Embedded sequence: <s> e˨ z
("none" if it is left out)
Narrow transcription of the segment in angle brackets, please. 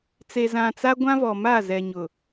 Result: t͡s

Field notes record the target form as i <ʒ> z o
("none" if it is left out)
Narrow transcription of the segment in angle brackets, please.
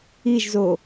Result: ʒ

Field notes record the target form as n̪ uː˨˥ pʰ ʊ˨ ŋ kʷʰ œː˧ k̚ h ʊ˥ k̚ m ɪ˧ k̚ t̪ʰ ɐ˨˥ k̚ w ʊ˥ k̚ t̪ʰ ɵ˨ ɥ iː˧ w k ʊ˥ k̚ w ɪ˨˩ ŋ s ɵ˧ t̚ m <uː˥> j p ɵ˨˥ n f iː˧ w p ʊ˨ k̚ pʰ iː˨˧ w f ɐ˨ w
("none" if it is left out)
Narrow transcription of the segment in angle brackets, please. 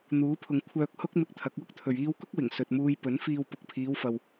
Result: uː˥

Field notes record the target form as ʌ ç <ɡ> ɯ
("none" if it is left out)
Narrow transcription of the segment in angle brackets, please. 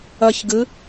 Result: ɡ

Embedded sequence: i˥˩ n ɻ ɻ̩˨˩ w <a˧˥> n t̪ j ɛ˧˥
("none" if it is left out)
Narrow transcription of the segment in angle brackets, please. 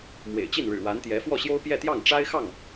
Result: a˧˥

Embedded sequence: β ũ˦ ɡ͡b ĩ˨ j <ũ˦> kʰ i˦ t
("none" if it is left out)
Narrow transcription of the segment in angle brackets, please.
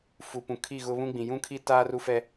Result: ũ˦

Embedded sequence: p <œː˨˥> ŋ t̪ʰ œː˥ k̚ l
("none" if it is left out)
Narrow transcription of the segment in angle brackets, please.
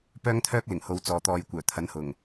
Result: œː˥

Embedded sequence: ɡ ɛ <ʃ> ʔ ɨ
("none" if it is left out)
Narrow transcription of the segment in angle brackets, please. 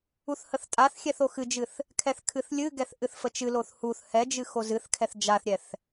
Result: θ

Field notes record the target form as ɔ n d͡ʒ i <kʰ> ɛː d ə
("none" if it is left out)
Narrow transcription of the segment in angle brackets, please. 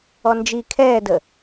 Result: kʰ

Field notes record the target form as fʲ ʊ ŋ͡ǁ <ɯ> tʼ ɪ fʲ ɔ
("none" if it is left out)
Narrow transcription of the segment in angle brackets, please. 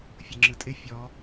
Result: ɯ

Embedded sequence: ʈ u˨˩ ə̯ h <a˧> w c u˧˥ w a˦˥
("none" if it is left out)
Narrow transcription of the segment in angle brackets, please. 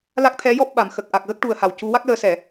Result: a˨˩˨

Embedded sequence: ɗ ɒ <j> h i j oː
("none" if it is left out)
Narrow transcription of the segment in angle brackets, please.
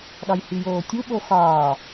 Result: j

